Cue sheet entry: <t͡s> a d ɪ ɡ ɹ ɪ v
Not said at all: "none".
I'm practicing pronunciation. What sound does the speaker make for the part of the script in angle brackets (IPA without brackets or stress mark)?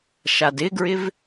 ʃ